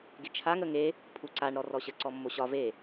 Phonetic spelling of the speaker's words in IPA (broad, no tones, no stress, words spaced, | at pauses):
ɡet͡ʃʰaŋ əŋe | pʰuǀaɳ ɾɔrɔɕə ǀɔmːoɕɒ ve